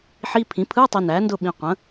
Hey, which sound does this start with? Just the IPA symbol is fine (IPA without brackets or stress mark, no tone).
ħ